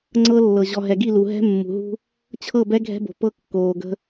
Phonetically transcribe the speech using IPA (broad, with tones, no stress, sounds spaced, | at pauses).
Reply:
ŋ͡ǀ ɤ˦ lː ɤ˨ ʑ ɔ˨ ɦ ɛ˨ ɡ i˦˨ l u˨ ɦ ɛ̤˦ mː ṳ˨ ɦ ṳ˦ | t͡ɕʰ ɤ˦˨ b ɛ˦ ɡʱ ɛ̤˦ b o̤˨ p ɤ˦ kː oː˨ ɡ ə̤˦